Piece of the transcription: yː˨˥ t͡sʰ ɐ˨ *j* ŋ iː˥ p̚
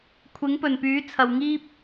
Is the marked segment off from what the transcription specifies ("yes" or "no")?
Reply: yes